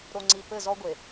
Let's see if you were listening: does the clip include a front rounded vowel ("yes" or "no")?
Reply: no